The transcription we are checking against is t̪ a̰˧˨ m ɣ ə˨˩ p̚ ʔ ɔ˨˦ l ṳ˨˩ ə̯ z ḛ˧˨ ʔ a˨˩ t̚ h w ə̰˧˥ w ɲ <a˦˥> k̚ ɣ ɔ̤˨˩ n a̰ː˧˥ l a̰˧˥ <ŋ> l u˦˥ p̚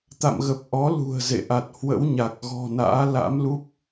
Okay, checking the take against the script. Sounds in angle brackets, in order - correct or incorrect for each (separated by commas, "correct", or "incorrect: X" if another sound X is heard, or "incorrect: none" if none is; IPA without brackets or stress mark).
incorrect: a˨˩, incorrect: m